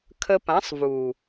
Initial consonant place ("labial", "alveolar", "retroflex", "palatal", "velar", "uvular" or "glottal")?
velar